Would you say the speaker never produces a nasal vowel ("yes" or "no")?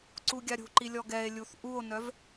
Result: yes